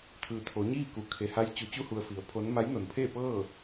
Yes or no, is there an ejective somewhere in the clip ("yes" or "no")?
no